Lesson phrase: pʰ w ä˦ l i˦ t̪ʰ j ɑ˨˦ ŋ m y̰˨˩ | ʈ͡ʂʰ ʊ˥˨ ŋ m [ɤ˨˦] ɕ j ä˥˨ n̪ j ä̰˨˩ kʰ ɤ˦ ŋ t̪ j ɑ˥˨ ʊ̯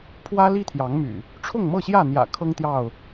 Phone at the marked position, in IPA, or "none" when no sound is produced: ɤ˥˨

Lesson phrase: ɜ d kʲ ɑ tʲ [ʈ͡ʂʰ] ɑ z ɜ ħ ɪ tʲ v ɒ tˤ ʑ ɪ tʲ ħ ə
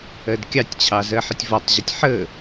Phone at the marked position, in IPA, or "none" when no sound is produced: t͡ɕʰ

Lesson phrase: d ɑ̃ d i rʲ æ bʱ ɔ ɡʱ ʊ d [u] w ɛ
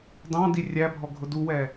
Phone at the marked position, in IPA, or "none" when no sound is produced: u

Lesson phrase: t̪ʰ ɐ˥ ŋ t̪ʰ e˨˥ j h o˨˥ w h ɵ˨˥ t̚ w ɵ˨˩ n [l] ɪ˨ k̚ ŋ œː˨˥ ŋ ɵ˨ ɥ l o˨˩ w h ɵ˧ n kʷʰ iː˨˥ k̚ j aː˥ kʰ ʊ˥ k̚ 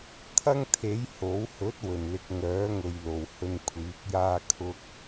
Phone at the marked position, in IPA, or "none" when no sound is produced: l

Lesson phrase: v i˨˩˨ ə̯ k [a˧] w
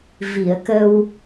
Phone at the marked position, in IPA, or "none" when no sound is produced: ə˧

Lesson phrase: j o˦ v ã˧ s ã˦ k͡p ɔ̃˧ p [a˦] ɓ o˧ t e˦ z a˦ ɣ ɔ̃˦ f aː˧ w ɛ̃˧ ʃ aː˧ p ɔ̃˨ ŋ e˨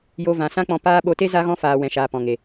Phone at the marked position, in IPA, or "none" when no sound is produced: aː˦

